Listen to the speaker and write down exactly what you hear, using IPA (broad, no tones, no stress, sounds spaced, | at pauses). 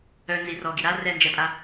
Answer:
œ n z i r ɔ ɡ i ɾ a r ɛ n d͡ʒ ɛ pʼ a